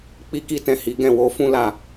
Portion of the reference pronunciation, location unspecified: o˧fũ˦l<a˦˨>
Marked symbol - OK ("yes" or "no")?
yes